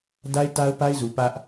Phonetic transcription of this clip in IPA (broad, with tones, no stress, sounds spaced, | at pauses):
d a˦ ɪ̯ t a˦ ʊ̯ p a˦ ɪ̯ z u˨ p ä˦ ʔ